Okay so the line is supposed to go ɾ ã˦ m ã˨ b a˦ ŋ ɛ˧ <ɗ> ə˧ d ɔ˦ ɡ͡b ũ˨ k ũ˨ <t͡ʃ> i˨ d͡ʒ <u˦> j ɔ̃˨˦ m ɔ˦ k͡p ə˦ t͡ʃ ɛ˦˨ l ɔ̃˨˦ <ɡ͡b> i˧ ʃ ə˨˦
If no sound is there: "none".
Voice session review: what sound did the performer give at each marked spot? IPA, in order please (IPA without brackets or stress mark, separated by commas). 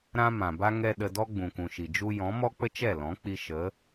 ɗ, ʃ, u˦, k͡p